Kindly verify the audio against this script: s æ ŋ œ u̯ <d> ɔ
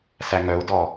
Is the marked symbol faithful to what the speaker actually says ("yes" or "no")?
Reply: yes